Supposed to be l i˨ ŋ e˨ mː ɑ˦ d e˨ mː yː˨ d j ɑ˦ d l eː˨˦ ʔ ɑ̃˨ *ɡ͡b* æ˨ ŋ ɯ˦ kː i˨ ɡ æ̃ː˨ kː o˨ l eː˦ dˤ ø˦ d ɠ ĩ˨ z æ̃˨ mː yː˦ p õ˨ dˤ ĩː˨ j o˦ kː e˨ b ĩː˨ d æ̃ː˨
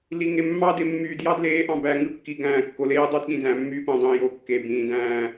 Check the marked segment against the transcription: incorrect: b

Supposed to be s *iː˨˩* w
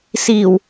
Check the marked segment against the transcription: correct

